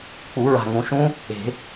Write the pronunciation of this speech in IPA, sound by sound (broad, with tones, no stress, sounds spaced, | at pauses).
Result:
k͡p u˨˩˦ ɹ a̤˨˩ ŋ ũ˨˩ ʃ ũ˦˥ | e̤˨˩˦